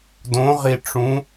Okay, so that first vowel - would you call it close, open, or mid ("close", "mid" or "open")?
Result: mid